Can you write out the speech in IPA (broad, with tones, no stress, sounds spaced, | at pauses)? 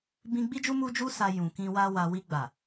b ĩ˧ ɡ͡b i˦ d͡ʒ u˦ m u˦ d͡ʒ u˦ s a˧ j ũ˨ k ĩ˧ w a˦ w a˧ w i˧ ɡ͡b a˨